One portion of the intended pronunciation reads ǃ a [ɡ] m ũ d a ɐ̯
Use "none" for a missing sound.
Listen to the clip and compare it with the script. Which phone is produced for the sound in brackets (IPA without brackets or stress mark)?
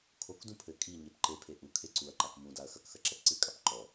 k